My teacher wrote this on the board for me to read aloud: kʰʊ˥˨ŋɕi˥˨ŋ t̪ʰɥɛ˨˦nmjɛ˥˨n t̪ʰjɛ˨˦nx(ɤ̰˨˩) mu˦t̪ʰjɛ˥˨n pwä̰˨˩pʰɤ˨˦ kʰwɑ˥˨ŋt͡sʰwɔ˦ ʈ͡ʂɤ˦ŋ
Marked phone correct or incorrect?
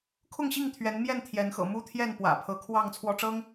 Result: correct